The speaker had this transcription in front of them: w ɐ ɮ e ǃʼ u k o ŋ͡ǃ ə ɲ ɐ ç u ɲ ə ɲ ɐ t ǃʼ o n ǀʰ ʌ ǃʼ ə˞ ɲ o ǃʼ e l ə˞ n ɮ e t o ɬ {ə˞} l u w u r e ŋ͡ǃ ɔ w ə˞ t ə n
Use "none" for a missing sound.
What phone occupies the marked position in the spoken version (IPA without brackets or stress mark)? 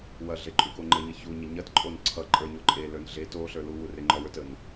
ə˞